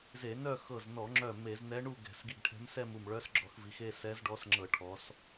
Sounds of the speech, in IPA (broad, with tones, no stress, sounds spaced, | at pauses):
z e˧˩˧ n œ˥˧ x ɤ˧˩ z n ɔ˧˩˧ ŋ͡ǁ œ˧˩ m e˧˩˧ z n ɛ˧˥ ɳ u˥˧ ɡ ɛ̤˧˩˧ s ɡ i˧˩ ɡ ʈʰ ɛ̤˧˥ m s ɛ˥˧ m u˧˩ m ɭ œ˧˥ s ɡ͡ǁ ɔ˧˩˧ x v i˩˧ x e˥˧ s ɛ˧˥ z ɖ ɔ˧˥ s ŋ͡ǁ ɤ˧˩˧ ʈʰ ɔ˩˧ s